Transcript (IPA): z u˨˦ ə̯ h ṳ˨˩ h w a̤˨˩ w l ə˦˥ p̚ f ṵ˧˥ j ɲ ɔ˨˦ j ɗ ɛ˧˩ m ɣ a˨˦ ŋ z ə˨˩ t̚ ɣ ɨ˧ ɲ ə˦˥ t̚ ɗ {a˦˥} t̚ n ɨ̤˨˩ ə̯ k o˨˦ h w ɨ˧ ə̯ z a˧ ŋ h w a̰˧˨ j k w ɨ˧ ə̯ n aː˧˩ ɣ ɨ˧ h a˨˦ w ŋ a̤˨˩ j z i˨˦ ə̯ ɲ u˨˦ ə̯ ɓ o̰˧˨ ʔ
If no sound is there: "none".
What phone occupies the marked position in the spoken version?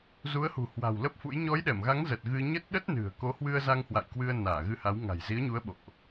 ə˦˥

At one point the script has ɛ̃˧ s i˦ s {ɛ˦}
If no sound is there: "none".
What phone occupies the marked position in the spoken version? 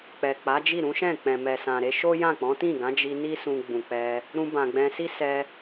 ɛ˧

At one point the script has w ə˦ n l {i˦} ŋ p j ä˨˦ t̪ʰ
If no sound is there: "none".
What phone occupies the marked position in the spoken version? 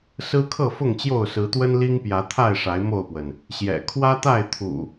i˦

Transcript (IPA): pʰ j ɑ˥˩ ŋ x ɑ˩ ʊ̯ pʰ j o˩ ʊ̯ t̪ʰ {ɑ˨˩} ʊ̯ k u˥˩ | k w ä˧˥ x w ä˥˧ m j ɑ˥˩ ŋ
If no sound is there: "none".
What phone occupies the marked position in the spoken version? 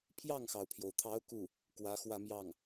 ɑ˧˥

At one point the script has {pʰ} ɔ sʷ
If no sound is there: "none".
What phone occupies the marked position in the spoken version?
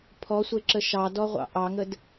pʰ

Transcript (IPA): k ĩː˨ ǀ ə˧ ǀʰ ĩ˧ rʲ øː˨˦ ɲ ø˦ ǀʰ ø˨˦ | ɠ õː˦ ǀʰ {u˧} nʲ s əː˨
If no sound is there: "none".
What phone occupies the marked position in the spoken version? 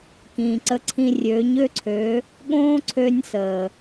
ø˧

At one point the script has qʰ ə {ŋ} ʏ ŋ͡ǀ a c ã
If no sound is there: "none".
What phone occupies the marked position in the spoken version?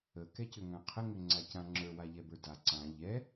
ŋ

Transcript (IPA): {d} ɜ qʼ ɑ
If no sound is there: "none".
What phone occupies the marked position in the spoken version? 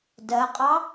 d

